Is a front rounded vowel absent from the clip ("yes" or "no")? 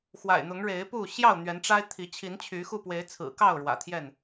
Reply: no